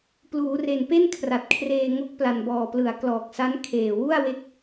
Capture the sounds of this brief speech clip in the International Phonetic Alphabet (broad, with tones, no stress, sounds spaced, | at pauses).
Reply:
p l uː˩˦ r e˨˩ n p e˥˩ n kʰ r a˨˩ t̚ kʰ r eː˧ ŋ o˦˥ k̚ p l a˨˩ n b ɔː˨˩ p l ɯ˩˦ a̯ k l ɔː˨˩ k̚ s a˦˥ n kʰ eː˨˩ w u˥˩ a̯ w e˦˥ k̚